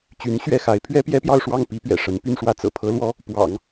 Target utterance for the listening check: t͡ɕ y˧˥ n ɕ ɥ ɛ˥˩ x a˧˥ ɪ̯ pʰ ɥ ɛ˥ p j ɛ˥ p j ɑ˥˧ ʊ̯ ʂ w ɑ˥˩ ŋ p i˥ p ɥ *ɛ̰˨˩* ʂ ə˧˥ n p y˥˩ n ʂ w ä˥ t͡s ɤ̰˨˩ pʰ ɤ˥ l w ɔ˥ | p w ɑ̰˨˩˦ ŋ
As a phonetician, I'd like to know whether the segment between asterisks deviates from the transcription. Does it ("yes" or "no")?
no